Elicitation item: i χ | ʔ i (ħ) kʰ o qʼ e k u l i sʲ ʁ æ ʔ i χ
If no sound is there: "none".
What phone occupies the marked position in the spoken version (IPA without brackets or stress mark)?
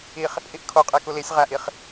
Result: ʔ